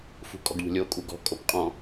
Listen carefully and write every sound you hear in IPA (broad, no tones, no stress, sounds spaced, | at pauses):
f ṳ kʼ ɔ̤ ɡ ʎ o̤ lʲ o kʼ u ɡ ɔ̤ kʼ o p qʼ ɔ̃